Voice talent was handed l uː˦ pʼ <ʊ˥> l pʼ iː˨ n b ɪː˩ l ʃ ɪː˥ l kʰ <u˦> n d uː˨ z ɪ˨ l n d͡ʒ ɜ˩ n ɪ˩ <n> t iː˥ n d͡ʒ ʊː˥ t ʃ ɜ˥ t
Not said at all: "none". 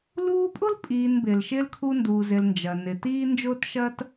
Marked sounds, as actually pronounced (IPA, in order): ʊ˥, u˦, none

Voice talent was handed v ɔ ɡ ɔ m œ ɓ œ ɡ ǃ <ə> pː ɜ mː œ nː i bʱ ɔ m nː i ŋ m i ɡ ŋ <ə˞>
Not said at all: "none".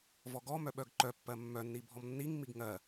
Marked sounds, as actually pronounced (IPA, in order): œ, ɜ

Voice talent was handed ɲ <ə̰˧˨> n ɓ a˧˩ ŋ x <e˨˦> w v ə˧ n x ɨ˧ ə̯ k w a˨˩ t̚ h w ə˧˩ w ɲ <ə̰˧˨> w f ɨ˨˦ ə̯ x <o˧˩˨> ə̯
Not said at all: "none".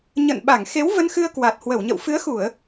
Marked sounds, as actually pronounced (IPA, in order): ə̰˧˨, e˨˦, ə̰˧˨, u˧˩˨

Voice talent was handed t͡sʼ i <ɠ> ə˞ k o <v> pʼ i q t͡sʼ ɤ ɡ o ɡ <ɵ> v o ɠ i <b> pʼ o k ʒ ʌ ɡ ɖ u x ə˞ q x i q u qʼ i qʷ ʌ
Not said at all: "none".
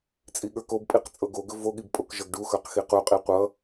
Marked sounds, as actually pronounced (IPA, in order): ɠ, b, ɵ, b

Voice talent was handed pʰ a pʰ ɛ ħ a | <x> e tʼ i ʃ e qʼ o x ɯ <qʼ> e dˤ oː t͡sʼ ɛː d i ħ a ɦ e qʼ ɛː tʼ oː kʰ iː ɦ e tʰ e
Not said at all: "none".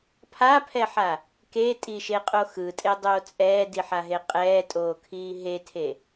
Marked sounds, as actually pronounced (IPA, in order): k, tʼ

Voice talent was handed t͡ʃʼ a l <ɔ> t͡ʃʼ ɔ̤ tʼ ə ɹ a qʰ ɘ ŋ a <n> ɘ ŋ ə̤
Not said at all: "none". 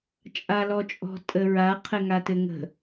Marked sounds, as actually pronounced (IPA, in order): ɔ, t

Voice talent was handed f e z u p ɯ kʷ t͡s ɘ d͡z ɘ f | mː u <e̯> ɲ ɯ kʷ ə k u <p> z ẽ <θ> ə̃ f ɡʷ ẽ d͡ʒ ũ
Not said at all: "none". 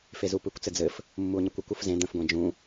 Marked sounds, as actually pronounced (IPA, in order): o̯, f, d̪

